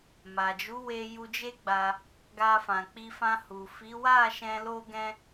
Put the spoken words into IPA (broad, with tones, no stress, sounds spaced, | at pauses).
m a˨ d͡ʒ u˨˦ w e˧ j u˧ d͡ʒ e˦ ɡ͡b a˧ | ɡ a˧ f ã˨ k͡p i˧ f ã˧ h u˨ f i˨˦ w a˦˨ ʃ ɛ̃˧ l o˦ ɡ ɛ̃˦